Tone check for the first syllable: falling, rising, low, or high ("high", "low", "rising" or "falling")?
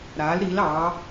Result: rising